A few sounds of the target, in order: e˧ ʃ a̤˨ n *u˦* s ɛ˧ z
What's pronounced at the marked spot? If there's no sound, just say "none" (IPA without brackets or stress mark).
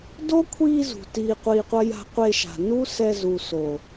u˦